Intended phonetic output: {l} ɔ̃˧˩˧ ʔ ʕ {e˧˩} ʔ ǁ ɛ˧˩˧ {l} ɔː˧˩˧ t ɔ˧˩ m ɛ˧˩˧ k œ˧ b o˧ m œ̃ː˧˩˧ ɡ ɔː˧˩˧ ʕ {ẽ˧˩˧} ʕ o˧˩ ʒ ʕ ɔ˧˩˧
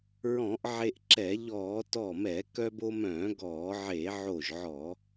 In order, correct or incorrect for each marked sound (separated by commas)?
incorrect, incorrect, incorrect, incorrect